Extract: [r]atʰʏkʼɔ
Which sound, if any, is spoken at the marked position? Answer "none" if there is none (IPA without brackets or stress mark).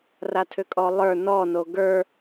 r